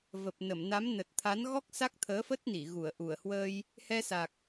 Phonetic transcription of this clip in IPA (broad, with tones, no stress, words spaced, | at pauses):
və˨˩p̚nə˧˩mna˨˦m nə˨˩t̚t̪ʰa˨˦nɣɔ˦˥k̚ sa˦˥k̚t̪ʰəː˨˦fə˦˥t̚ni˧˩ ɣu˧˩ə̯ʔu˧˩ə̯hwəː˧j | hɛ˧sa˨˩k̚